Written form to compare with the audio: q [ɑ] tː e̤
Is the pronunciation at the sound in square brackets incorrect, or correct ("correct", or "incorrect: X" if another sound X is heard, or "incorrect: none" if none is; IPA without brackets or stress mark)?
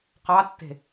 correct